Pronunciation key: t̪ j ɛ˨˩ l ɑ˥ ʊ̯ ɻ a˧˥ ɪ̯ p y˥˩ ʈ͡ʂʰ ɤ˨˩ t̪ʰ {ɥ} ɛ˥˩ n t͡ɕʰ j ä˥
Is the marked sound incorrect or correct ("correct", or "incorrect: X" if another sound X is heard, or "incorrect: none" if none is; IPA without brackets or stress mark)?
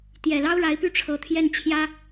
incorrect: j